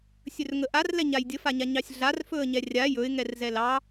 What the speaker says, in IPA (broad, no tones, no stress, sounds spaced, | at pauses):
sʲ ɵ r ŋ ə ʔ a r l ɛ ɲ a j dʲ ə f a ɲ a ɲ ɑ sʲ ɮ a r f ɵ ə̯ ɲ ɛ rʲ a j ɵ ɪ̯ ŋ ɛ r z ɛ l ɑ